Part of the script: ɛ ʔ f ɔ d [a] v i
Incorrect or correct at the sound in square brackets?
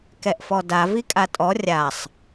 correct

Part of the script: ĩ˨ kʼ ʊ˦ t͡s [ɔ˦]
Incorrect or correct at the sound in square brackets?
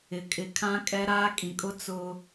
incorrect: ʊ˦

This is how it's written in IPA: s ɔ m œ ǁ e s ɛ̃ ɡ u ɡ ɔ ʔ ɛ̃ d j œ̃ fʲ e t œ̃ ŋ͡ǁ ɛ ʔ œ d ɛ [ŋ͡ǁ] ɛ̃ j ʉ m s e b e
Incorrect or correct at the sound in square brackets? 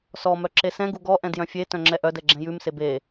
incorrect: ɡ͡ǁ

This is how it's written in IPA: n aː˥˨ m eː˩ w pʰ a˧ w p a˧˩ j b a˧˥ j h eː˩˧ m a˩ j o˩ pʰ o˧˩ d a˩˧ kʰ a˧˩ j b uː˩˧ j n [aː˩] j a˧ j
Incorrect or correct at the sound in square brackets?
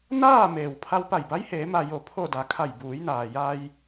correct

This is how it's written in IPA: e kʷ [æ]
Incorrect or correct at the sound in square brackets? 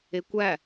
correct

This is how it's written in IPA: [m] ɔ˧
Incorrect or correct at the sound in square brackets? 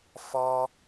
incorrect: f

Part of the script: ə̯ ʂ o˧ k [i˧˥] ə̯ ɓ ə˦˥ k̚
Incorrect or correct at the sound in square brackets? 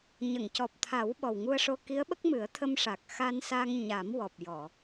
correct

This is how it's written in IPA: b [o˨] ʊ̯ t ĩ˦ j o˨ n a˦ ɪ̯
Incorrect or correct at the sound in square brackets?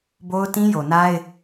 incorrect: o˦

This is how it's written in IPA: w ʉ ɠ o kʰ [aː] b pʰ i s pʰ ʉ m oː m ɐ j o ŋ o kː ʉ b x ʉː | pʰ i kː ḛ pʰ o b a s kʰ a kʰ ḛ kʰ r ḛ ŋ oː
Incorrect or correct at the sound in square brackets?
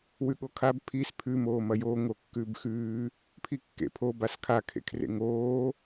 incorrect: a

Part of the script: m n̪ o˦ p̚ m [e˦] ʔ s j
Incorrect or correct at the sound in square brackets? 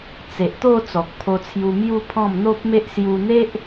correct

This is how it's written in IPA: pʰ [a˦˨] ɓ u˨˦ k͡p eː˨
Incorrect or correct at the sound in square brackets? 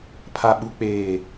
incorrect: a˨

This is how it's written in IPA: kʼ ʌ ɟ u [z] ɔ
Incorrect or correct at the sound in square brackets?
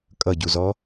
correct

